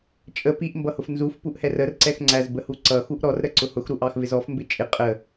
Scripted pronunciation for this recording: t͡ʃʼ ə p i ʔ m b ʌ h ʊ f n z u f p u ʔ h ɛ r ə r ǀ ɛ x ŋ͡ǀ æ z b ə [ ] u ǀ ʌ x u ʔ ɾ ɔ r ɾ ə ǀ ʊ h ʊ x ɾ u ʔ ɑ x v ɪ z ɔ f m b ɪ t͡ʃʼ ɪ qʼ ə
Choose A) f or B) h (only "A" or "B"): B